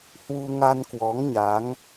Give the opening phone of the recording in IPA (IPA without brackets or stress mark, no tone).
h